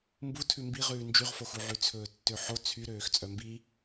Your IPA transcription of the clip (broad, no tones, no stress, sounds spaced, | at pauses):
m b u tʰ ʉ m b i ʁ ʉː n d͡ʒ y ʁ f o x u ʕ ʉ t͡sʰ ɵː tː ø ħ o t͡sʰ y ɾ øː x t͡sʼ œ m b i